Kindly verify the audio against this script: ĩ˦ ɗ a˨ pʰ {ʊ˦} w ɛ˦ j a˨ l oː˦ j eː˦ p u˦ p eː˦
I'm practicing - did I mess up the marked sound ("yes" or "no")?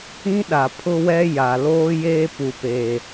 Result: no